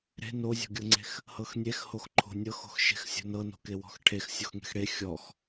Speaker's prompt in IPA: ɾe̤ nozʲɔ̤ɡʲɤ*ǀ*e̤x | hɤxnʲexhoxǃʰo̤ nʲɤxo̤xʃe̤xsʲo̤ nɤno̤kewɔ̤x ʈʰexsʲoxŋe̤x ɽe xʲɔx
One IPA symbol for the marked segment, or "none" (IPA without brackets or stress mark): ŋ͡ǀ